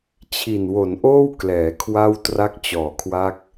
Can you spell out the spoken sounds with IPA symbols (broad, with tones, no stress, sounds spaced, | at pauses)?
t͡ɕʰ i˨˩ n w o˩˦ n ʔ oː˥˩ w k l ɛː˩˦ kʰ w a˥˩ w t r a˦˥ k̚ t͡ɕ ɔː˩˦ kʰ w a˦˥ k̚